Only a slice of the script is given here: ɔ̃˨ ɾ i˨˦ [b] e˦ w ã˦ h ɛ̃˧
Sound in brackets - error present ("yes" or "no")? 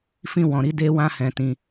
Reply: yes